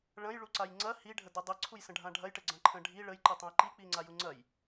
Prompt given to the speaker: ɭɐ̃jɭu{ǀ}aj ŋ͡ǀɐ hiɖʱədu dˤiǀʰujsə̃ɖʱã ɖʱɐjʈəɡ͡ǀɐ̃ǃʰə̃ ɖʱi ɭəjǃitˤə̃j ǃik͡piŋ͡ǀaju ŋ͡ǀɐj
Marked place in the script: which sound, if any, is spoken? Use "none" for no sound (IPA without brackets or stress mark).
ǀ